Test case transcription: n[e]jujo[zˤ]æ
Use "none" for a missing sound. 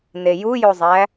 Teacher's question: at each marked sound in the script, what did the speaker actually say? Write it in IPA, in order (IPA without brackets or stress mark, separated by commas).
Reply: e, zˤ